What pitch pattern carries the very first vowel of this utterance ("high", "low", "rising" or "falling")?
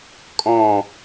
falling